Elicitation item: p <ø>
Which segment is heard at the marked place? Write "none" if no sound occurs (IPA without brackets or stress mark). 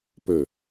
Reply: ø